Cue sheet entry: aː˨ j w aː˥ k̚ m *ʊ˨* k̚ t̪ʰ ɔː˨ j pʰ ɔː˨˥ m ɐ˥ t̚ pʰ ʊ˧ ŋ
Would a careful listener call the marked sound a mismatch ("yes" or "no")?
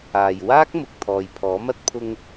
no